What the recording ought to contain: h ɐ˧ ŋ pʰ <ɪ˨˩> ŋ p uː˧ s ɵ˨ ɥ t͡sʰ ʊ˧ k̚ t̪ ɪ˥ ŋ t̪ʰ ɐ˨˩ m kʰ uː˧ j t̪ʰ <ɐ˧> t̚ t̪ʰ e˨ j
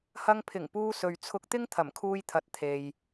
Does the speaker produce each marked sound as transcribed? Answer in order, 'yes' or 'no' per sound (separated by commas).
yes, no